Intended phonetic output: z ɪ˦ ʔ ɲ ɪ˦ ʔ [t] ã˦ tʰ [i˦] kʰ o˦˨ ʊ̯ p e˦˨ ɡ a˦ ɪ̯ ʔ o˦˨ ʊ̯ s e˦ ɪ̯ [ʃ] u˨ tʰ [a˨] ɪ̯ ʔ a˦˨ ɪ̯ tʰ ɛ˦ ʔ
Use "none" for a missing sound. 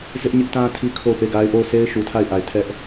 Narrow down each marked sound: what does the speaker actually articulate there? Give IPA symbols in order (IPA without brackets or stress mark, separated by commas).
t, i˦, ʃ, a˦˨